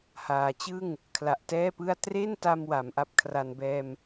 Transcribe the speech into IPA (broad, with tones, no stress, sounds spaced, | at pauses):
h aː˩˦ t͡ɕ ɯ˥˩ ŋ | kʰ l a˨˩ ʔ t ɛː˥˩ p ɯ˥˩ a̯ t r e˥˩ n t a˧ m w a˩˦ m ʔ a˥˩ p̚ kʰ r a˧ n b ɛː˧ m